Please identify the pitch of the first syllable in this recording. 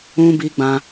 high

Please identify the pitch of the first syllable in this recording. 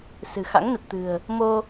low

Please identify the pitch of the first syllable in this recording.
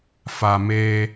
low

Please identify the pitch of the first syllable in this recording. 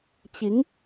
rising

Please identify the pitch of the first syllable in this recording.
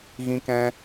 high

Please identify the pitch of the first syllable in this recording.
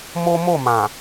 high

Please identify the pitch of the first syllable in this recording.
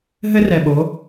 high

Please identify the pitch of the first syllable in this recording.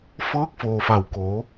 rising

